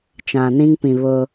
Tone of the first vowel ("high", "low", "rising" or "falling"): low